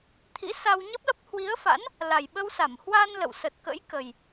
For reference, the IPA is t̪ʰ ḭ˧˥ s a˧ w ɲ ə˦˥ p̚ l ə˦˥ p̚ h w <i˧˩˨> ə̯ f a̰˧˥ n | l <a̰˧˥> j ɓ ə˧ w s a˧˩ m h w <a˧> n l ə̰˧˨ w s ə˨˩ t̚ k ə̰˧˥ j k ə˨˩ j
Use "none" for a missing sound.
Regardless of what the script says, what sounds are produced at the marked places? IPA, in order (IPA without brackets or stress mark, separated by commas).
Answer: i˨˦, a˨˩, a˧